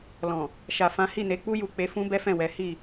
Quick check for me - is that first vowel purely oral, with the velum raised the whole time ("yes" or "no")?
no